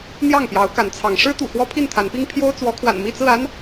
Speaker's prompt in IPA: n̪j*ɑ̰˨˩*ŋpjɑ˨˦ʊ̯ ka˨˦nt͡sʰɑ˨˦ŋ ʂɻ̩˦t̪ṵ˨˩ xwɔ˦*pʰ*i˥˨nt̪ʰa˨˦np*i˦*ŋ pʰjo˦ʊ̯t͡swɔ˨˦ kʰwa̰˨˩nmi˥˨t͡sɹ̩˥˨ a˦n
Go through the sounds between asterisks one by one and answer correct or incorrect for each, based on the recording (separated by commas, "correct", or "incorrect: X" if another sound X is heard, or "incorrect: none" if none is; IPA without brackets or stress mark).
incorrect: ɑ˥˨, correct, correct